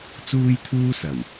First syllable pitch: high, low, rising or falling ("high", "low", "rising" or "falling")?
high